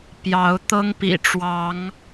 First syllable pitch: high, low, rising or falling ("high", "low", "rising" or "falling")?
rising